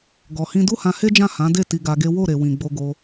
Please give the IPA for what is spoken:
ɡ ɔ˨ h ĩ˧ d u˦ h ã˧ h e˦ d͡ʒ ã˦˨ h ã˨˦ d e˦˨ t i˧ ɡ a˧ ɡ e˦ w o˦˨ ɾ e˨ w ĩ˨ ɡ͡b o˧ ɡ o˧

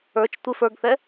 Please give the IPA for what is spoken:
ə˞ t͡ʃ tʷ ɪ f ə˞ ɡ θ ɛ

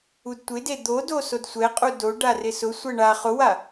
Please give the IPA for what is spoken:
u d tʷ ɪ d e d̪ o d o s o d sʷ ɛ qʼ u d o ɖ a r ɪ s ʊ sʷ ɛ ɳ a χ ʊ w a

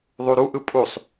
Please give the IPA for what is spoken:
ðˤ u ɾ u ʔ ɯ pʼ u sˤ

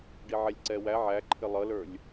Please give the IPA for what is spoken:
ɖ i ʕ ɛ lʲ ǀ ɛ w æ ʕ æ ǃʰ ɪ lˠ ʌ l ə˞ lʲ

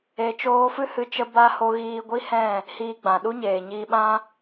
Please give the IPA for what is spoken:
e˧ t͡ʃ oː˦ f ɨ˦ h ɨ˧ t͡ʃ ə˧ b a˧ h o˧ ɣ iː˧ ɡʷ i˦ h ɛ̃˦˨ | h iː˧ ɡ͡b ã˨ ɗ u˦ ɲ eː˨ ɲ iː˧ ɓ ã˦

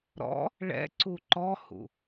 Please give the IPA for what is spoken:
ɾ ɔ̰ | ɭ ɛ̰ ǀ u ǃ ɔ h ṵ

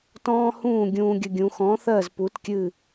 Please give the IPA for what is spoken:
t ɔ̃ː˦ h ũː˦˨ ɡʲ ũː˦ ɡʲ ə˦ ɡʲ ũ˨˦ x ɔ̃˨˦ θ ɜ˦˨ z p u˨˦ t kʲ ɨ˦˨

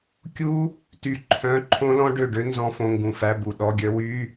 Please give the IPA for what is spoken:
kʲ u˦˥ | t y˧˩ ǃʰ œ̃˧˥˧ ǃʰ õ˦˥ l ɔ̃˦˥ ɖ ø˧˩ ɖ ø˦˥ n z ɔ̃˧˥˧ f õ˧˥˧ ŋ ɡ ũ˧˩ f æ˧˥˧ b u˧˩ ɗ ɔ˧˥˧ ɡʲ œ˦˥ w y˧˥˧

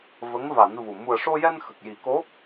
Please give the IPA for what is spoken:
v ə˧˥ ŋ v a˨˩˦ n v u˨˩ m u˨˩ ə̯ ʂ o˧ j ɛ˧ n x ə˨˩ k̚ j i˨˩˦ k o˧˥

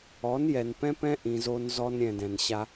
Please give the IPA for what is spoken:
ɔ˨˦ n j ɛ˨ n p ɛ̃˦ p ɛ̃˦ ʔ ĩ˨ z o˦ n z ɔ˦ n ɾʲ ɛ̃˨ d ɛ̃˨ n ɕ a˦

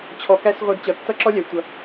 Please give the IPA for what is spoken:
t͡ɕʰ ɔ˨˦ k æ˦ s ʁʷ ʌ˧ d t͡ɕ ʌ˨ tː ʌ˦ ǁ ɔ˦ lʲ æ˨ tʷ ʌ˨

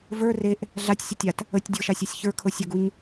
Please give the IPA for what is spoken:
v ə˞ r e ʔ | ɮ a tʲ sʲ ə tʲ a t | ə tʲ dʲ ɤ ʃ a sʲ a sʲ ç ə˞ kʰ ɤ sʲ ə ɡ u ɲ

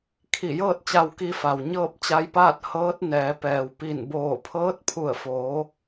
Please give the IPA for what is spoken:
kʰ i˧˩ j ɤː˥˨ t̚ t͡ɕ a˧ w k i˧ f a˩ w ɲ ɤː˥˨ p̚ t͡ɕ a˧ j p aː˥˨ t̚ h ɤː˧˥ t̚ n ɛː˩˧ p ɛː˩ w p i˧˩ n b oː˧˩ pʰ ɤː˧˥ t̚ pʰ u˧˩ ə̯ f oː˩˧

